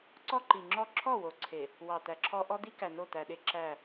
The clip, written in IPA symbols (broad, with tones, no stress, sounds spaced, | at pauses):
ǀ ɔ˦ ǃ i˨ ŋ͡ǁ ɔ˦ ǁʰ ɔ˦˨ w o˨ ǀʰ e˨ | w ɑ˨ t̪ æ˨ ǁʰ ɔ˦ ʔ ɔ˦ d̪ i˦ k æ˨ n o˦˨ t̪ æ˨ ɗ e˦ ǁ æ˦˨